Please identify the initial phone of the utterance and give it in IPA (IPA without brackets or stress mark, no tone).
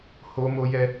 h